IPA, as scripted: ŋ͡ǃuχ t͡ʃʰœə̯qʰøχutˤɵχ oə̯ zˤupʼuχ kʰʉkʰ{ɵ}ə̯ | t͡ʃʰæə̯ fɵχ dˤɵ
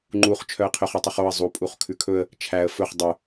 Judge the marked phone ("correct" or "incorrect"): correct